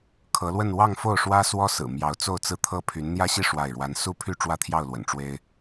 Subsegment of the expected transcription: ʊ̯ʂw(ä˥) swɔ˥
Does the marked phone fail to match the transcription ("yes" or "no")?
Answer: no